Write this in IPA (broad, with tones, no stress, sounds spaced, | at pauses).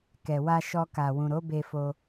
k ɛ˨ w a˧ ʃ ɔ˧ k a˨ w ũ˨ ɾ o˨˦ b e˧ f o˧